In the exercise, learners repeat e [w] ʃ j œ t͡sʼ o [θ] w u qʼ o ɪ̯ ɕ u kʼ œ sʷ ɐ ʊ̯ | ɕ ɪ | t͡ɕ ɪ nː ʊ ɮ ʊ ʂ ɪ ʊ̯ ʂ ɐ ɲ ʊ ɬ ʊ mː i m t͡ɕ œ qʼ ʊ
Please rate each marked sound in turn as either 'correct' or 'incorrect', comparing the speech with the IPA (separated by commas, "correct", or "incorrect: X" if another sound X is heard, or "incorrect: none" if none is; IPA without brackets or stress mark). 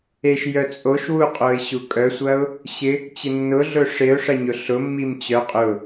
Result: incorrect: none, incorrect: ʃ